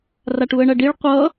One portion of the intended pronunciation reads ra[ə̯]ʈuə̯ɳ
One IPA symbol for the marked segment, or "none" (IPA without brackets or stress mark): none